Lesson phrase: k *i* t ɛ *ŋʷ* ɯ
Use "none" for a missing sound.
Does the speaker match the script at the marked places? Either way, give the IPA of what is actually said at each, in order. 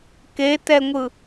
e, ŋʷ

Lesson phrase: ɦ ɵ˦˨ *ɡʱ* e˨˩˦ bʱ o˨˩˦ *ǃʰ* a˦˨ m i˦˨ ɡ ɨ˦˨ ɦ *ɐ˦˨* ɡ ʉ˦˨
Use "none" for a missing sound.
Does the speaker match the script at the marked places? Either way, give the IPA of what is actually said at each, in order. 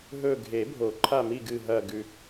ɡʱ, ǃʰ, ɐ˦˨

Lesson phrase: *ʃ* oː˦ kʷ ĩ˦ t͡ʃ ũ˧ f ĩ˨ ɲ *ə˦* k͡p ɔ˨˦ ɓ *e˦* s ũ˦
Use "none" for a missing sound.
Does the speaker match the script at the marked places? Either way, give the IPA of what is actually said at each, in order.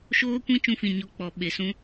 ʃ, ɔ˦, e˨

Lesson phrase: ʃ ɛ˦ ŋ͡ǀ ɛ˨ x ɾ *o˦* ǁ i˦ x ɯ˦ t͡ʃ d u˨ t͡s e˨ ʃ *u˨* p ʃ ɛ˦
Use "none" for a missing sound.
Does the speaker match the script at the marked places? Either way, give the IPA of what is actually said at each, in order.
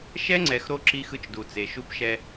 o˦, u˦

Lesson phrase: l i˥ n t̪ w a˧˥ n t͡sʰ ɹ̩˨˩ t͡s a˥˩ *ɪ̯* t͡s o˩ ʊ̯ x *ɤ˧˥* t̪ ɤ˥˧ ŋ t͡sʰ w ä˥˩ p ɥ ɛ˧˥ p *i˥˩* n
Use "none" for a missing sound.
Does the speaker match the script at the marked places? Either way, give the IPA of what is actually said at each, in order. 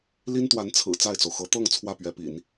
ɪ̯, ɤ˧˥, ḭ˨˩˦

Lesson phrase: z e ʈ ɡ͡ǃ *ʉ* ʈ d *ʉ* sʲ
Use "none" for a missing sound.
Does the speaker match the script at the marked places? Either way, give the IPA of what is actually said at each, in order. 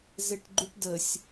ʉ, ə

